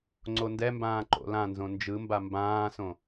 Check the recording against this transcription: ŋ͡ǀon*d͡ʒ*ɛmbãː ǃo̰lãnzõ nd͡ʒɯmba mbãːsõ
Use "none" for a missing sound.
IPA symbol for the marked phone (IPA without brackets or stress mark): d